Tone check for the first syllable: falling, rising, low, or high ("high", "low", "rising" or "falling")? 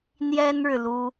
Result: high